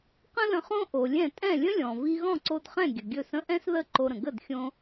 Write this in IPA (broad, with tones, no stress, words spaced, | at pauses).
qə̃˥lə̃˧χõ˥ ʔo˩lʲɛ̃˥˩ tʼɛ̃˥˩lʲə̃˥lʲɔ̃˩ vi˧ɣɔ̃˥˩ǀo˧dχɛ̃˥˩ ɡʲə˩ɡʲɵ˥˩sə̃˥ ʔɛ̃˥sðə˥˩ ǃo˧ɾə̃˩ ɡə˥˩dxʲõ˧